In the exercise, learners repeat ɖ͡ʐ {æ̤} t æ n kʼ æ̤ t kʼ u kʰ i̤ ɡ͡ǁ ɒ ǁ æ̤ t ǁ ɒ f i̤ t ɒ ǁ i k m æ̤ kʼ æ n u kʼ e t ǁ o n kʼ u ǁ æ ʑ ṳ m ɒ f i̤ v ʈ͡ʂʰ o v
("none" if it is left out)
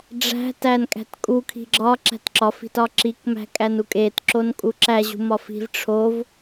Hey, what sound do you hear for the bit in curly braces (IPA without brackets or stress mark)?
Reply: æ̤